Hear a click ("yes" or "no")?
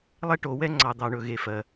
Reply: yes